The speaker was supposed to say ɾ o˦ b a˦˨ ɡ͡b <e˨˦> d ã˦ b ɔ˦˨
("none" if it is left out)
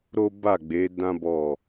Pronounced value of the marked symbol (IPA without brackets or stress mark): e˨˦